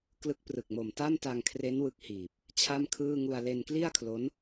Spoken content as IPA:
k l ɯ˦˥ k̚ p r ɯ˨˩ k̚ m o˨˩ m t a˥˩ m t a˧ ŋ kʰ r e˦˥ n w ɯ˦˥ k̚ h iː˨˩ p̚ | t͡ɕʰ a˥˩ m kʰ ɯː˥˩ ŋ u˧ a̯ l e˧ n k l i˥˩ a̯ kʰ l o˦˥ n

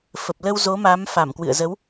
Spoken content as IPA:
f ə˨˩ p̚ l ə˧ w z o˨˦ m a˨˦ m f a˧˩ m k w ɨ̰˧˨ ə̯ z ə˨˦ w

